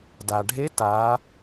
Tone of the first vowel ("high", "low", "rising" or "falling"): low